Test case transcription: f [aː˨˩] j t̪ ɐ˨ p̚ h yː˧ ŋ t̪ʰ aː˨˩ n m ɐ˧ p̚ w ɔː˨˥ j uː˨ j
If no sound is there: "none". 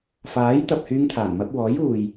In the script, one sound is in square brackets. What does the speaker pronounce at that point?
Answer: aː˨˥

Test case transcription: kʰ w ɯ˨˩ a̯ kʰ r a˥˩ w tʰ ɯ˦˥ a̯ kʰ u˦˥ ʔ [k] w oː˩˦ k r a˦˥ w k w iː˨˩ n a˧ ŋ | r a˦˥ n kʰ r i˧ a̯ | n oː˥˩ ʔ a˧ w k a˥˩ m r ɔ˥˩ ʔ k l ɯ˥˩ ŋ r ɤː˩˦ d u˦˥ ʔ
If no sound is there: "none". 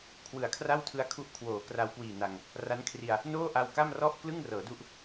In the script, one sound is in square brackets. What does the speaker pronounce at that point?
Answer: kʰ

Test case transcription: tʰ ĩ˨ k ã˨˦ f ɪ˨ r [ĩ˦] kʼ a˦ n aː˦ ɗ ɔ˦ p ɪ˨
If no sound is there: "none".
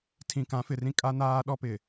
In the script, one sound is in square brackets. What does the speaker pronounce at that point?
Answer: ĩ˦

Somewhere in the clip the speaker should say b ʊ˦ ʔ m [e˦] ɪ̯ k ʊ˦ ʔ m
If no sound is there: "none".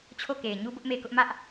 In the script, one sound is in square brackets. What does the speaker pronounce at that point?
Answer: e˦˨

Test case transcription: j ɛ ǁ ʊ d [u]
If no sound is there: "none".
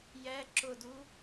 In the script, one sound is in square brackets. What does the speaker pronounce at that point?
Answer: u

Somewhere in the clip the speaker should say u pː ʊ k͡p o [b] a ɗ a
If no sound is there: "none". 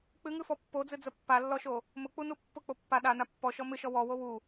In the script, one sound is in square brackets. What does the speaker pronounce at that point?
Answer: pː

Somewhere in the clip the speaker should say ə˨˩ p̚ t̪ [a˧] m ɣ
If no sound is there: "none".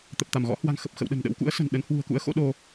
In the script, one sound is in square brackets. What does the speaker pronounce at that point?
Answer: a˧˩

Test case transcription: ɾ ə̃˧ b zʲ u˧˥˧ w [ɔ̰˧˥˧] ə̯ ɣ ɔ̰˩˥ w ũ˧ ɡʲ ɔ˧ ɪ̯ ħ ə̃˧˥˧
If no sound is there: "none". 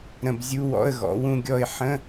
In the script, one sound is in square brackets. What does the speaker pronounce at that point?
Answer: ɔ̰˧˥˧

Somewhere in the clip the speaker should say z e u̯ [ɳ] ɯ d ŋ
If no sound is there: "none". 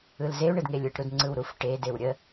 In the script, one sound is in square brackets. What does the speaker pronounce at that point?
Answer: ɳ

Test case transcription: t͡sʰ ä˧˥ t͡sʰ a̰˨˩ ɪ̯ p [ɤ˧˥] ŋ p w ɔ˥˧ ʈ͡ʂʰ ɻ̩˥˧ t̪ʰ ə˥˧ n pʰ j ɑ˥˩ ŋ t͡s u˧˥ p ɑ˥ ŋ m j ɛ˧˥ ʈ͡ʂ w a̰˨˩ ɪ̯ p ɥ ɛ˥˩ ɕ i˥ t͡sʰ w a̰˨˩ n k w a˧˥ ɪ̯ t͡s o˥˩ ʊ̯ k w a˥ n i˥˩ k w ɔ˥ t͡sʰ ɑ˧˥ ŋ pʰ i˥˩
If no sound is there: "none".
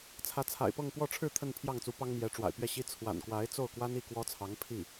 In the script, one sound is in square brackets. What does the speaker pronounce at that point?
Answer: ɤ˥˧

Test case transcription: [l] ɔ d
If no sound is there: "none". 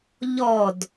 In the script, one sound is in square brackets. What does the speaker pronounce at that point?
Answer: ʎ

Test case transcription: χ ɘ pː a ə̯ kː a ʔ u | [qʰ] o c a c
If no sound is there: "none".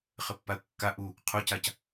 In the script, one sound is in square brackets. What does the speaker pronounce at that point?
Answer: qʰ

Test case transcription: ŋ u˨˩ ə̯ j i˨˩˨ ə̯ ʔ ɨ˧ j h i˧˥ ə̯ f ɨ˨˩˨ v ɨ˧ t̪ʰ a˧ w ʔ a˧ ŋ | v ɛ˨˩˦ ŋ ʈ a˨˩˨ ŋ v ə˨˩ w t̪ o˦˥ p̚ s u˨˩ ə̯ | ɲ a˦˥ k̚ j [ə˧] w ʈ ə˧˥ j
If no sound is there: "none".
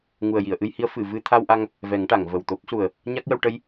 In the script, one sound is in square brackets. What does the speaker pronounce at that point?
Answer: ə˧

